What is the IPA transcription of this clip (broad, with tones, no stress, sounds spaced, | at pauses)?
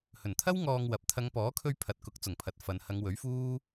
h ɵ˨˩ n t̪ʰ ɐ˥ w ŋ ɔː˧ ŋ w ɐ˨˥ p̚ t̪ʰ ɐ˨˧ ŋ p ɔː˨˥ kʰ ɵ˧ ɥ pʰ ɐ˨ t̚ k ʊ˨˥ k̚ t͡s ʊ˨˩ ŋ pʰ ɐ˨ t̚ f ɐ˨ n h ɐ˨˧ ŋ w ɵ˨˥ ɥ f uː˥